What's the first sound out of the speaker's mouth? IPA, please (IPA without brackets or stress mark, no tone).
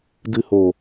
d